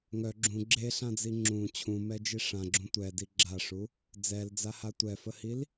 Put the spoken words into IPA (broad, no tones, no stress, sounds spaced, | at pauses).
ŋ œ ɡ͡ǁ ũ ɡ͡ǁ e ɬ ã d͡z i ŋ͡ǁ ũ t͡ɕʰ ũ m ɛ d͡ʒ i ʂ ã ɡ͡ǁ ũ tʷ ɛ d i ɡ͡ǁ a ʂ u | d͡z ɛ l d͡z a h a tʷ ɛ f ə h i l